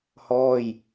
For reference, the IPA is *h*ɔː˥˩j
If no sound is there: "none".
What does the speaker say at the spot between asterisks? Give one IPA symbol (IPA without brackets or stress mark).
h